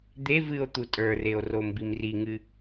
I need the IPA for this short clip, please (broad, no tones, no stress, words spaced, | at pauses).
d̪e vɨo̯t̪u tʼə˞reo̯ rombimriŋɨ